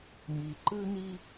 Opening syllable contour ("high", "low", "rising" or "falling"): low